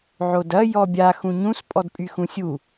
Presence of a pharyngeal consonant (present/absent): present